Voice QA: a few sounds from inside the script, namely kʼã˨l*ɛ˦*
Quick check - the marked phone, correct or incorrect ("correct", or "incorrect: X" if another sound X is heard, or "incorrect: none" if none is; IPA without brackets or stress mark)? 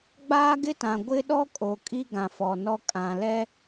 correct